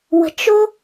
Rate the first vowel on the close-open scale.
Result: mid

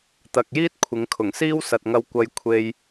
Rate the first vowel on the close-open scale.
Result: open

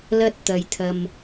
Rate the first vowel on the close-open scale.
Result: open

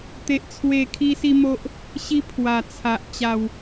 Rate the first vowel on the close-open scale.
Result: mid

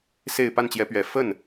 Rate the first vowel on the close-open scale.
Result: mid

